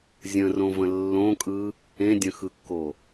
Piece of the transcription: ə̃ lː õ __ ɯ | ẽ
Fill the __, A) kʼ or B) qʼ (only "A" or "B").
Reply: A